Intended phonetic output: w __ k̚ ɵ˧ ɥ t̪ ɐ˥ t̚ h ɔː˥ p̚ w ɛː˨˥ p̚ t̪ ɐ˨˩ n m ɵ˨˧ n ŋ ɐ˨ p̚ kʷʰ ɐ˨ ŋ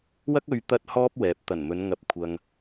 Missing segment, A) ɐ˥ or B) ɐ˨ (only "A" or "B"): A